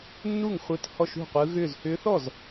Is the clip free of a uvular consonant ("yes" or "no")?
no